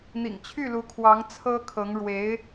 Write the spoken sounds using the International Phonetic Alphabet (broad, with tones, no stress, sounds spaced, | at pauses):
n̪ ḭ˨˩ ŋ t͡ɕʰ y˥˩ l u˧˥ kʰ w ɑ˧˥ ŋ t͡sʰ ɤ˥ kʰ ɤ˧˥ ŋ ɻ w e˧˥ ɪ̯